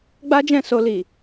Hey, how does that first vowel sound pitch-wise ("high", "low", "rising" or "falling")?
high